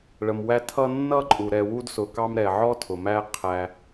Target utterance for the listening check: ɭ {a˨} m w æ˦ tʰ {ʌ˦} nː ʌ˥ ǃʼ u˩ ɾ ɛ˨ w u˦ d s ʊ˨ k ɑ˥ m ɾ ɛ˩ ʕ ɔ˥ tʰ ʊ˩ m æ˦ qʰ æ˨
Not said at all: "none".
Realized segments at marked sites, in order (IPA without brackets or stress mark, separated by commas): ə˨, ʌ˥